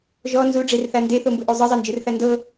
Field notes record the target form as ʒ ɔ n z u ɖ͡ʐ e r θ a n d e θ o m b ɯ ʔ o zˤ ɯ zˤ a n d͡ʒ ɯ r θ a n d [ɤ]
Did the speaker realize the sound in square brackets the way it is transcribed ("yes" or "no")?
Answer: yes